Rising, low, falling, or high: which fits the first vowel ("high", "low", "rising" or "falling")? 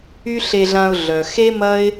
high